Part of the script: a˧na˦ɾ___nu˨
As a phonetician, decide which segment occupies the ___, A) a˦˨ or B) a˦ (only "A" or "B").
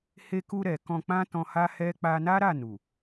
A